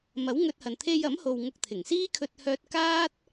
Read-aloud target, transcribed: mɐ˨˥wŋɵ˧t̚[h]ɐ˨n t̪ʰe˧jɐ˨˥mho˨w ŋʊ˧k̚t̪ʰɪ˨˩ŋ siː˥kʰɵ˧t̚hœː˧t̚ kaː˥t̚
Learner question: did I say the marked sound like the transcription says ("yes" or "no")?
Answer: yes